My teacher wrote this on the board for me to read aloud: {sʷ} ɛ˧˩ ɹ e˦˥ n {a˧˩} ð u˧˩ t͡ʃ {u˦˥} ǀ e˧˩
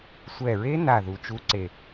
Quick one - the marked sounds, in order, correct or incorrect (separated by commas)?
correct, correct, correct